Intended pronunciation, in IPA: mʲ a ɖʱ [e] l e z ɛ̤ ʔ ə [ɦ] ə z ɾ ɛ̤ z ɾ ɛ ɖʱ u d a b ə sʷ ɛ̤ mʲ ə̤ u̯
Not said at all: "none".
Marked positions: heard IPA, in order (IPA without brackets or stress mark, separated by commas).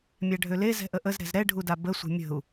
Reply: ø, ʔ